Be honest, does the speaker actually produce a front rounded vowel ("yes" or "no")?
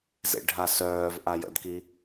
yes